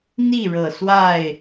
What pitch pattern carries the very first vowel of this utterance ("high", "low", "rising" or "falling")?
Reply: falling